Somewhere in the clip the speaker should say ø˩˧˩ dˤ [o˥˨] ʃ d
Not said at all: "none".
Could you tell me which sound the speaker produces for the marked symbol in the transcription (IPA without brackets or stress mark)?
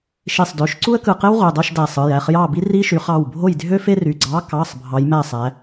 o˥˨